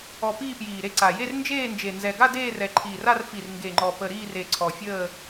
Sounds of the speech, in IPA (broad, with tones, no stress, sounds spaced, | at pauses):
ɔ˨˩ p iː˥˧ p j iː˨˩ ɾ e˥˧ ǀ a˨˩ j e˥˧ r n d͡ʒ eː˥˧ n d͡ʒ e˨˩ n z ɛ˨˩ ɡ a˥˧ d eː˥˧ r ɛ˨˩ ǃʰ iː˨˩ r a˥˧ r f i˨˩ r ŋ ɡ e˨˩ ŋ͡ǃ ɔ˨˩ p ə˨˩ ɾ iː˥˧ r e˨˩ ǀʰ ɔ˨˩ fʲ əː˥˧